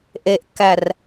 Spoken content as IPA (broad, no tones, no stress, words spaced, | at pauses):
ʔeʔkːær